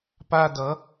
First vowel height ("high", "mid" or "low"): low